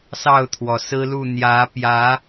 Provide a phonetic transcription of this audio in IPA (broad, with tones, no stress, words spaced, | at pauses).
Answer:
sɑ˥˨ʊ̯t̪ʰwɔ˩sɹ̩˦lu˥˨ n̪jä˨˦pjä˨˦